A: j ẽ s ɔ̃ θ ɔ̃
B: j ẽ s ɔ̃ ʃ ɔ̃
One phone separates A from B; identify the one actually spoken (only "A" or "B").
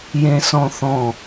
A